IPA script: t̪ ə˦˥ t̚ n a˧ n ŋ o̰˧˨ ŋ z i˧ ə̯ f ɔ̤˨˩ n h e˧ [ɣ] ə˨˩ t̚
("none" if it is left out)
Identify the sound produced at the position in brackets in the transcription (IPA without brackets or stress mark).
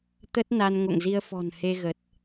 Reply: ɣ